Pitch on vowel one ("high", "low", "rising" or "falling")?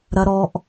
high